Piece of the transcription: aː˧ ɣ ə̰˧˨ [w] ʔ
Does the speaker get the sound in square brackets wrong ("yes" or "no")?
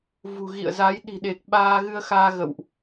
no